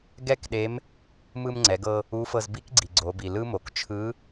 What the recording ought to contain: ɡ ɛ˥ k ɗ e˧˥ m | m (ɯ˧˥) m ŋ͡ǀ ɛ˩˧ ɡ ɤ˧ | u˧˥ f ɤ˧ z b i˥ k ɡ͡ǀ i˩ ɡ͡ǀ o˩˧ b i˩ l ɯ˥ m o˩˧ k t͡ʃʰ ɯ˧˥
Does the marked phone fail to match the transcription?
yes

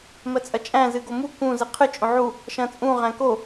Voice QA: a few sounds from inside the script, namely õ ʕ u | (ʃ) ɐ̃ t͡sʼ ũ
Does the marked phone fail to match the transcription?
no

